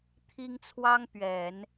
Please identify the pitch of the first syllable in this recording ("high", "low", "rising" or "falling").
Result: high